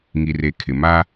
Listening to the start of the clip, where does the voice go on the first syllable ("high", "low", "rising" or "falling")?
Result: low